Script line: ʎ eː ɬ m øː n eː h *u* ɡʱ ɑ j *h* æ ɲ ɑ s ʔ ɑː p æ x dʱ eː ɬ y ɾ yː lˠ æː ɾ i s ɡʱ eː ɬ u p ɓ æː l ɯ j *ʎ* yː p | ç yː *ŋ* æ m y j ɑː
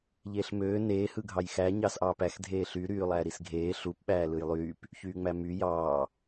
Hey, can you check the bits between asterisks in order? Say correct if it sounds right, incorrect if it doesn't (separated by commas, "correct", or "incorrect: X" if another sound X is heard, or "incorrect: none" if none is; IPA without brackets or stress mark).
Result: incorrect: ɯ, incorrect: x, incorrect: lˠ, incorrect: ŋ͡m